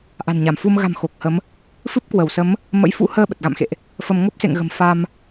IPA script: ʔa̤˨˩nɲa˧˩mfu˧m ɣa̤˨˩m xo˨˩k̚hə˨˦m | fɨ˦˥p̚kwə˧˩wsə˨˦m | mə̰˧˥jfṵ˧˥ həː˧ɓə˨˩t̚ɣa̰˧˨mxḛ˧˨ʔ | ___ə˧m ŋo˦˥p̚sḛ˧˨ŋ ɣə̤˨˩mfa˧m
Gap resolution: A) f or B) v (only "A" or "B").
A